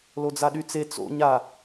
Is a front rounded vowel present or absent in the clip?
present